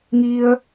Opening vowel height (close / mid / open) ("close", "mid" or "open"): close